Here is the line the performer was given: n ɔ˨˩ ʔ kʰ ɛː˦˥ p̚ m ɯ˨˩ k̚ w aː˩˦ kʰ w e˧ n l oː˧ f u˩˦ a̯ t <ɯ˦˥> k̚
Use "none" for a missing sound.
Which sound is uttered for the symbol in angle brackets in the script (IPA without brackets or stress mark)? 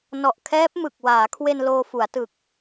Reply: ɯ˨˩